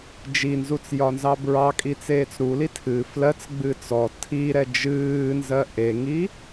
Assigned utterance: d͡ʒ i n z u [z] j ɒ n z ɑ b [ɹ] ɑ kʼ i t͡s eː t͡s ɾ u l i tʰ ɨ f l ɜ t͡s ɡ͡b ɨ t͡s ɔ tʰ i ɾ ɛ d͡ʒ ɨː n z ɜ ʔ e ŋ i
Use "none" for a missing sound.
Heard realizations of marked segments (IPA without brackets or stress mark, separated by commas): t͡s, ɹ